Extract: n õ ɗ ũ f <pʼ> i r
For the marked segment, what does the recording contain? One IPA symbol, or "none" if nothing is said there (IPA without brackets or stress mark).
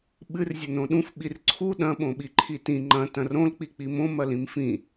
ɓ